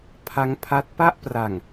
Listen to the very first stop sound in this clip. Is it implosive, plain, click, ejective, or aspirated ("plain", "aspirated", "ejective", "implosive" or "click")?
aspirated